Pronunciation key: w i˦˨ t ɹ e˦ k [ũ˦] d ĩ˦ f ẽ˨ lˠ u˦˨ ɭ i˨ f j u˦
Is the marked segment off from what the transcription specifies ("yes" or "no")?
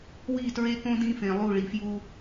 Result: yes